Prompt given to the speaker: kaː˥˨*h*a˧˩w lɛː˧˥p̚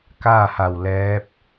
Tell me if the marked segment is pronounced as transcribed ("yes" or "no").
yes